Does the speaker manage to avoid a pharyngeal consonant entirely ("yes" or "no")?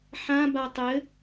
no